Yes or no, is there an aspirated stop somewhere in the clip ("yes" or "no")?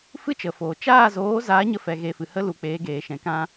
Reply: no